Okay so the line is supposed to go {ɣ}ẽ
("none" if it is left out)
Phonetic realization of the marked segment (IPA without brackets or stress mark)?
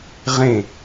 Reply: ʁ